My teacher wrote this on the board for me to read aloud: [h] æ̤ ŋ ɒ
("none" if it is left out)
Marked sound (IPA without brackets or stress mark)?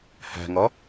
h